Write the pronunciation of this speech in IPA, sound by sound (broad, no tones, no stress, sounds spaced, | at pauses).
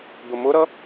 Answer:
d̪ ʊ m ʊ ɾ ʌ